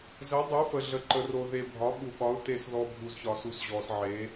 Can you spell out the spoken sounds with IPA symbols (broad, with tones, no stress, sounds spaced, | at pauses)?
z ə˨˥ dˤ u˨˥ f ə˨ ɮ ə˨ ǃ ə˨ r o˨ ð e˨ bʱ ɒ˨˥ ɓ u˨ ɓ ɒ˨˥ ʊ̯ t e˨ s ð ɔ˨ bʱ u˨ z ç ɒ˨ s u˨˥ s ʑ ɔ˨ s ʕ e˨˥